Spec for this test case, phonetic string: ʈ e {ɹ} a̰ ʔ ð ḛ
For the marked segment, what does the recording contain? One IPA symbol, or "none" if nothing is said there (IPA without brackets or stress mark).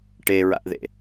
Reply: ɹ